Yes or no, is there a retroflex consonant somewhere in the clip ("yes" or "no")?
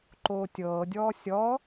no